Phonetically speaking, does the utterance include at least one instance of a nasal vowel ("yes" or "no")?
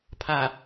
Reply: no